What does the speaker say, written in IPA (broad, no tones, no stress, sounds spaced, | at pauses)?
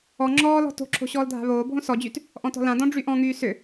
ɔ ŋ͡ǁ ɔː l ɔ̤ t o̤ ǁʰ o̤ ɕ ɔː l dʱ a̤ β oː bʱ õ s ɔ d͡ʑ y t | ʔ ɔ̃ t ɔ̤ l ã d ɔ̃ ɖ͡ʐ y ʔ ɔ̃ ŋ yː s ʏ